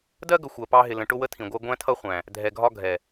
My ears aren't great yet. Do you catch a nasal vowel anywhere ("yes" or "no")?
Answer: yes